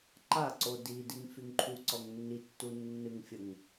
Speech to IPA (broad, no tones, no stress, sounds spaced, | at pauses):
ǃ a ǀ o d i d i ŋ f y ŋ ǃʰ u ǀ ɔ ŋ nː i tː u nː ɨ ŋ fʲ ə ŋ